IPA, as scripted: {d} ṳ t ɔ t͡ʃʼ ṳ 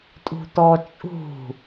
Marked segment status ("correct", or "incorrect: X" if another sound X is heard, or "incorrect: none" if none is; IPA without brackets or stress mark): incorrect: tʼ